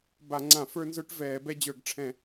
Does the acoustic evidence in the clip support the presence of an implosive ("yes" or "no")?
no